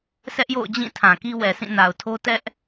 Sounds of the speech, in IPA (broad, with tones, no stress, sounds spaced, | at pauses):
s ɛ˦ ʔ j o̰˦˨ ʊ̯ d͡ʑ ĩ˦˨ tʰ ã˨ k i˦ w ɛ˨ s ĩ˦˨ n a˨ ʊ̯ tʰ o˦ t ɛ˦ ʔ